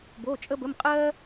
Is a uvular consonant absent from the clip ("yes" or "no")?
no